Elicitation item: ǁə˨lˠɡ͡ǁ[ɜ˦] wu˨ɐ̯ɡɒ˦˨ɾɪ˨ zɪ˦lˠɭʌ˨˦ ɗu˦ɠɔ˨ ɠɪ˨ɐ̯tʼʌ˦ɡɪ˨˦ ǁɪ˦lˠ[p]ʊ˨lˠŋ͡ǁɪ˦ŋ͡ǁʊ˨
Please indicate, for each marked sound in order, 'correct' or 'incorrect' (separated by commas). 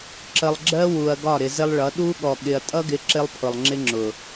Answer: correct, incorrect